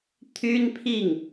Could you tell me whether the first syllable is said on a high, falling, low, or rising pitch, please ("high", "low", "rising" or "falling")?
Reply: high